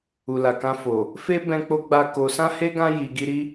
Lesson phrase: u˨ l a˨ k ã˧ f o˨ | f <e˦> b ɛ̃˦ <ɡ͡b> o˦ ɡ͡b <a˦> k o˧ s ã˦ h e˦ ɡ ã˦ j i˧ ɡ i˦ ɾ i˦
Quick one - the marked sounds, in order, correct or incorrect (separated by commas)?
correct, incorrect, correct